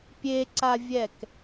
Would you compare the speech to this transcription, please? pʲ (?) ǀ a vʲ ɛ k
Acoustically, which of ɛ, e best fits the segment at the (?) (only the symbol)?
e